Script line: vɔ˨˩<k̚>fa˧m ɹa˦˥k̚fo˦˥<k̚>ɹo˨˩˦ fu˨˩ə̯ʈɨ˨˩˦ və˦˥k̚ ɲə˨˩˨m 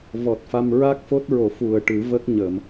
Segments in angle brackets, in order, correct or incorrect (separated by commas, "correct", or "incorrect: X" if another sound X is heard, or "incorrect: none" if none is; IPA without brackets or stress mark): incorrect: t̚, incorrect: t̚